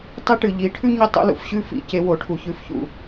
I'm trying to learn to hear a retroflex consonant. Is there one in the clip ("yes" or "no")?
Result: yes